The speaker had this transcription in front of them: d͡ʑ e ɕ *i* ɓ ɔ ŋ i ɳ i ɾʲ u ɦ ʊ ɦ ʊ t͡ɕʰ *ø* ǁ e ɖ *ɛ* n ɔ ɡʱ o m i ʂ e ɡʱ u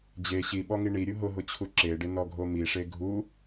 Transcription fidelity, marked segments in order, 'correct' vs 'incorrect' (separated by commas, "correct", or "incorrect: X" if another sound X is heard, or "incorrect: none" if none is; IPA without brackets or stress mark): correct, incorrect: u, incorrect: ɪ